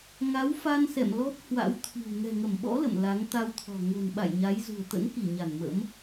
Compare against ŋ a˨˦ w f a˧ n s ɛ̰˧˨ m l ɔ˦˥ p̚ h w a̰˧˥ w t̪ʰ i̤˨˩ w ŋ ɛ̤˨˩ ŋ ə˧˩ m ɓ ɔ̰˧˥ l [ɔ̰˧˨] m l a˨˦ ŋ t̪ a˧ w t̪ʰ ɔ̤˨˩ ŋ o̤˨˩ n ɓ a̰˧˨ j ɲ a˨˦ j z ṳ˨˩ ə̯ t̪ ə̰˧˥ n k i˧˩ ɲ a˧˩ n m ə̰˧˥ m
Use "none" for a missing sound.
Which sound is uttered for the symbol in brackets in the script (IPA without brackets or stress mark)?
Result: ə̰˧˨